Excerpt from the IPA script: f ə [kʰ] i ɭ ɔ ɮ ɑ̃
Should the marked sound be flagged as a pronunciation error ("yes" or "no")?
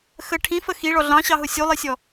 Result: yes